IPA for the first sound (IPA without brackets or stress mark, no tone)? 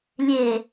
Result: lʲ